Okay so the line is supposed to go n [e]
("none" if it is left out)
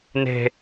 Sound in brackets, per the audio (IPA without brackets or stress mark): e̤